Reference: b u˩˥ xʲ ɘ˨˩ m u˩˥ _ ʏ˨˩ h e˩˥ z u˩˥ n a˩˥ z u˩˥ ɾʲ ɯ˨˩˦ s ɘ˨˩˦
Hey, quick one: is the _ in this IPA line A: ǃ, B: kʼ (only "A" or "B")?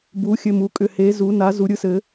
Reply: B